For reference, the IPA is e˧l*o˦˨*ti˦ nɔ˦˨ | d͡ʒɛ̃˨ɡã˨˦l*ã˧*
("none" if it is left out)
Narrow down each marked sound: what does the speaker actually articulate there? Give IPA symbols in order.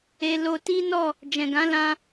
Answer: o˧, ã˧

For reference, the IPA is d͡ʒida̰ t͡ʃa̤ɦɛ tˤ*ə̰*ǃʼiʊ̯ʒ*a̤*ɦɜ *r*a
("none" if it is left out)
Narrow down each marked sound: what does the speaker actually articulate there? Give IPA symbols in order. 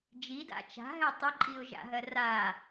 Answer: ə, a̰, r

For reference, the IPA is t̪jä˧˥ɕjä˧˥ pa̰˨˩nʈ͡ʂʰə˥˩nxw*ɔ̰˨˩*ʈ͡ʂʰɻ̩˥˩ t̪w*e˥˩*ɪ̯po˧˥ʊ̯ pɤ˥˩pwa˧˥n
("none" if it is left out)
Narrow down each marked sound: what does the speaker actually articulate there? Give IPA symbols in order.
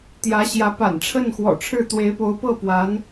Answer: ɔ̰˨˩, e˧˥

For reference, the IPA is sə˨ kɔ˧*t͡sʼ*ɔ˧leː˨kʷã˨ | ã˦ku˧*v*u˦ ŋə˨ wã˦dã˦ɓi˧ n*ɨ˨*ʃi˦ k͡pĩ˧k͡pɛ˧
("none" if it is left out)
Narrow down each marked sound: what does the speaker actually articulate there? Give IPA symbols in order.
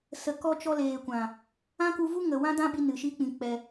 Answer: t͡ʃ, v, ɨ˨

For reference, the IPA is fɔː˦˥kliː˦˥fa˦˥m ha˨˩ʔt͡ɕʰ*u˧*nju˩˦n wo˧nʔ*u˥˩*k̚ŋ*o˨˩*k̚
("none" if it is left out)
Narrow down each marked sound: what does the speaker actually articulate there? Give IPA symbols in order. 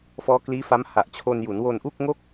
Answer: o˧, u˥˩, o˥˩

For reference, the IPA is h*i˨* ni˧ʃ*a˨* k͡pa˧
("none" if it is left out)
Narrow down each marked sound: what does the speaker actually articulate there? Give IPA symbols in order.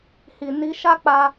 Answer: i˨, a˦

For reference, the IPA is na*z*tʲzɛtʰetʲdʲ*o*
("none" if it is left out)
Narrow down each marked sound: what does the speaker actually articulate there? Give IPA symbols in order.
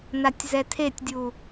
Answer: none, u

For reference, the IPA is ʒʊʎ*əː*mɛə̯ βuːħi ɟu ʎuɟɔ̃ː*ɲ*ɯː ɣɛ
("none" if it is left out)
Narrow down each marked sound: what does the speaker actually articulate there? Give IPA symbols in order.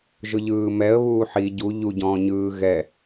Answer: ɯː, ɲ

